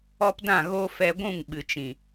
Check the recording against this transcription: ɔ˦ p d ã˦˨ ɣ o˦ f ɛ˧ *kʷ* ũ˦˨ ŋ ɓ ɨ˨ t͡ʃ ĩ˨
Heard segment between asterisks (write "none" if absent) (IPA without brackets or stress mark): ɡʷ